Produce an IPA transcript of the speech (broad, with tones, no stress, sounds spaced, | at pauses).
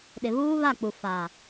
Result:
ɗ ɪ˨ β uː˦ β a˦˨ k͡p u˨ f a˨